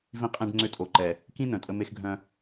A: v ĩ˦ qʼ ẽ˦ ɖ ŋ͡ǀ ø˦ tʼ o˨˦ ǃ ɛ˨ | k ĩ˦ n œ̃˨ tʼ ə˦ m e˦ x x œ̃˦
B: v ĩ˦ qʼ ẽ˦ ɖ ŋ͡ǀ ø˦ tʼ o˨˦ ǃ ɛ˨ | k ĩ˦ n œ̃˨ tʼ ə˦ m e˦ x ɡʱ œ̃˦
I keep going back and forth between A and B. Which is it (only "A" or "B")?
B